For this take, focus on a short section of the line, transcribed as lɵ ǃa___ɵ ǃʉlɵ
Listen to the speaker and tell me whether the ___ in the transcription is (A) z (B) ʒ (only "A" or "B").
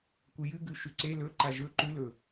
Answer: B